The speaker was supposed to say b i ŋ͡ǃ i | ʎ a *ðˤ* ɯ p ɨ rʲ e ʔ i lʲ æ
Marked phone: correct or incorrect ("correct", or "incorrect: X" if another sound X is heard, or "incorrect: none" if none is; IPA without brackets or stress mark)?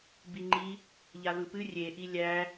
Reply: incorrect: ð